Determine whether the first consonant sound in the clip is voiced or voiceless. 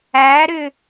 voiced